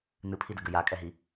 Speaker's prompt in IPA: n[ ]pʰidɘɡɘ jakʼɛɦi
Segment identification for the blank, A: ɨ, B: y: A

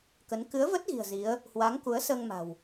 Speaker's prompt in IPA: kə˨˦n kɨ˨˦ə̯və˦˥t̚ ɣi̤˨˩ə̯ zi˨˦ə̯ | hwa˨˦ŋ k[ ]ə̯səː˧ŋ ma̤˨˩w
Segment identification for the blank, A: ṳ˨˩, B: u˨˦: B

